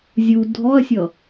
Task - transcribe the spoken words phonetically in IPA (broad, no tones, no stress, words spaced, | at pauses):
zʲu dʱɔɐ̯sʲʌ